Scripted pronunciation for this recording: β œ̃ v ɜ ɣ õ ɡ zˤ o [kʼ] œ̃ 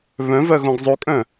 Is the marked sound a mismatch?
no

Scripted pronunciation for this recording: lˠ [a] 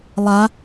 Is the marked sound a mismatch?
no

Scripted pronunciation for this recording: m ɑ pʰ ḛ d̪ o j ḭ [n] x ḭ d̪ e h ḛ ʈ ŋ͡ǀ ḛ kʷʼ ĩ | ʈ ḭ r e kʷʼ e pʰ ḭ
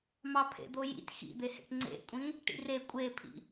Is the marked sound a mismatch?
yes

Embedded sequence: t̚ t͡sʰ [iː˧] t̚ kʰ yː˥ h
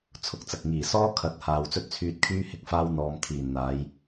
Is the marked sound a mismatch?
yes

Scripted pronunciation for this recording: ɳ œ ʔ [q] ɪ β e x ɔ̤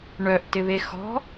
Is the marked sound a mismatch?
yes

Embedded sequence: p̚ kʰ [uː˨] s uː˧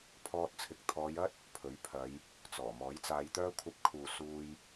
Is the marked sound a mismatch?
no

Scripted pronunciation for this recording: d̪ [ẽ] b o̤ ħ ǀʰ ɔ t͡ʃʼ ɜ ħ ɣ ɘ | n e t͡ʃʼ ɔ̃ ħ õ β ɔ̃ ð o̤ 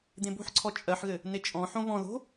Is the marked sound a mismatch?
no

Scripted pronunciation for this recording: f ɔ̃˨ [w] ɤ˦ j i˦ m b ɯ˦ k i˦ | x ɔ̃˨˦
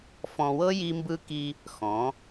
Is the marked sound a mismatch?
no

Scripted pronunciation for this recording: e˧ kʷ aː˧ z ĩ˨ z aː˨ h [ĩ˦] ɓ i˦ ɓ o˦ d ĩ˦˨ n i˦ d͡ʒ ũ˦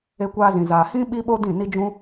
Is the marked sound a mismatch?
no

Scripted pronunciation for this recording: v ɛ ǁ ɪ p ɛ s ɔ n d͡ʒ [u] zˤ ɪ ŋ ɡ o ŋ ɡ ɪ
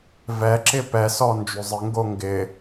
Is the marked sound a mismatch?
yes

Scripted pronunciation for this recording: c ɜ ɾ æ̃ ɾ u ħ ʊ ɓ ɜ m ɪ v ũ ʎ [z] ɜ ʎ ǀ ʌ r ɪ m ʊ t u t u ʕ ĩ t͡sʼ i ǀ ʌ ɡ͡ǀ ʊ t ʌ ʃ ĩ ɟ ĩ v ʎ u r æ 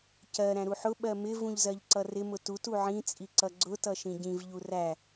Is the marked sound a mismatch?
no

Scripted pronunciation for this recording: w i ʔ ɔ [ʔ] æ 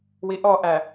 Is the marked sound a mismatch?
no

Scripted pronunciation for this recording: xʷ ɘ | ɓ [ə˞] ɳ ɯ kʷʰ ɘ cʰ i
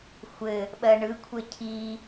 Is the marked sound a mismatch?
yes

